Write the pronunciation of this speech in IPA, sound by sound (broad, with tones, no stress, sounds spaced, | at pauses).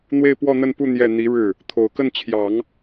n̪ w e˥˧ ɪ̯ p w ɔ˥˧ n̪ ə˥˧ n p u˥˧ n̪ j ɛ˥˩ n̪ i˧˥ ɻ ɻ̩˥˩ | t̪ʰ o˨˩ ʊ̯ k ə˥˩ n t͡ɕʰ j ɑ˨˩˦ ŋ